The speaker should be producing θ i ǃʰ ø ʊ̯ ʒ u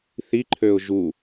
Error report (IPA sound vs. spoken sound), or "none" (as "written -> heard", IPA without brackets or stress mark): none